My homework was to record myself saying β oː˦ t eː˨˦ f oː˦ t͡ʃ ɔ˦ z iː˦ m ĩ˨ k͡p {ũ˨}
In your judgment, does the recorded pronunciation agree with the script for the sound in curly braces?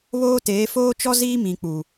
no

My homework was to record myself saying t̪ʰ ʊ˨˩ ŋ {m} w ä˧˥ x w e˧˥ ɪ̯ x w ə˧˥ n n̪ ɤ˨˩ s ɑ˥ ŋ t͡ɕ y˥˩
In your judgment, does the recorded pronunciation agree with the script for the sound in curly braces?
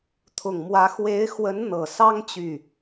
yes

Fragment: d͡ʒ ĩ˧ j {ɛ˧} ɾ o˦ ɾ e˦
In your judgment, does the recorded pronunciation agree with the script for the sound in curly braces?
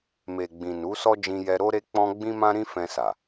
yes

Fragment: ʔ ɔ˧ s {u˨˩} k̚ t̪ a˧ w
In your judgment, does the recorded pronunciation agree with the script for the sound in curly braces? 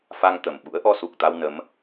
yes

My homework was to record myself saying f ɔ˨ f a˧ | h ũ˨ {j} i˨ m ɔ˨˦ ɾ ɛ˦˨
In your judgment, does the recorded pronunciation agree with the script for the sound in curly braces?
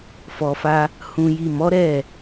yes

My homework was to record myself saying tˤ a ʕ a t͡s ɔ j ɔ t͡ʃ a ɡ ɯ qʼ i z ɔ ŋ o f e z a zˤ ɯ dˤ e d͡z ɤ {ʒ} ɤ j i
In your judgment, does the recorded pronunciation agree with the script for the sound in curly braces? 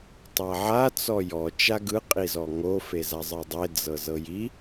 no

